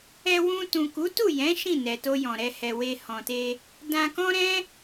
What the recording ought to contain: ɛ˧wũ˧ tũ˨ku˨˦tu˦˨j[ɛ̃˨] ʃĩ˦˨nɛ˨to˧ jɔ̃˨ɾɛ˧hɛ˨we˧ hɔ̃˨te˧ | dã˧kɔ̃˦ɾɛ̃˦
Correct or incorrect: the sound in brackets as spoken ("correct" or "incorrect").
incorrect